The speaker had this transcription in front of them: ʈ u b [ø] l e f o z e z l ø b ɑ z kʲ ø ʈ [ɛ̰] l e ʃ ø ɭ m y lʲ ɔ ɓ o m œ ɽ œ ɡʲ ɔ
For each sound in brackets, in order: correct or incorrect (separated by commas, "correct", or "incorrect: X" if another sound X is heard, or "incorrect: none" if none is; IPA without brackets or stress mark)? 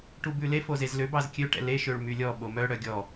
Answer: incorrect: ʉ, correct